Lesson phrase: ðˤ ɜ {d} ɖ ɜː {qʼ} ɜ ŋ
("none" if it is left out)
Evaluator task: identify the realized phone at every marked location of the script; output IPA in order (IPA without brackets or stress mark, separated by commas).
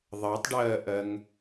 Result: tˤ, ʔ